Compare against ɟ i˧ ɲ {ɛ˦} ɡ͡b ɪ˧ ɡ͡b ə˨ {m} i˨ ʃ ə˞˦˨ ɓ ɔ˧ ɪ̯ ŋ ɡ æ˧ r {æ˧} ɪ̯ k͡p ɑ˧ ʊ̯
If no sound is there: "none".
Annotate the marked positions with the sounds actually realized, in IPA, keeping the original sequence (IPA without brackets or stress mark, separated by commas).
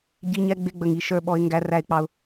ɛ˧, ŋ, æ˧